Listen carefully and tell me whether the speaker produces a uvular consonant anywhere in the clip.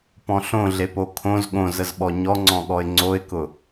no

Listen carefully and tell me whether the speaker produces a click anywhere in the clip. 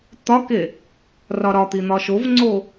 yes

